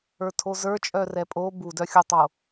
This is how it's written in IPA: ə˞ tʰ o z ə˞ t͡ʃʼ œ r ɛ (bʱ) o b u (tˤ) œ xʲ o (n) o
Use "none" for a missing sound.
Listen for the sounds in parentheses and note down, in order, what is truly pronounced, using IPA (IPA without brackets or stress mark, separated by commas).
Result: pʼ, d, tˤ